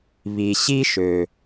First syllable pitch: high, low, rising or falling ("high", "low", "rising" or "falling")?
low